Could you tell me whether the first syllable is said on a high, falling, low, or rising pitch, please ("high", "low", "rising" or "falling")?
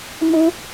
high